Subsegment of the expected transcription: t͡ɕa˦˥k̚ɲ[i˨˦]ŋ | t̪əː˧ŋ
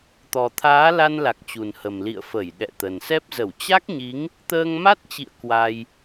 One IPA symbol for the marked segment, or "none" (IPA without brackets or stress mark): i˨˦